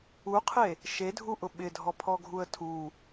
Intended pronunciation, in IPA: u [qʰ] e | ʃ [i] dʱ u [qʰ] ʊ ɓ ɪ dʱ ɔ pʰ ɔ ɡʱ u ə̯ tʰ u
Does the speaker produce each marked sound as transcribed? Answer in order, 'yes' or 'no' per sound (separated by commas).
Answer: yes, no, no